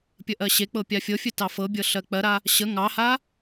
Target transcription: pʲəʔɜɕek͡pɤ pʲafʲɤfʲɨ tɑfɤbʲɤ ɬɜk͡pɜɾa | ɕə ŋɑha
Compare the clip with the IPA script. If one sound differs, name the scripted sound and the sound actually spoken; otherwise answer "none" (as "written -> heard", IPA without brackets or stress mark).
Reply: none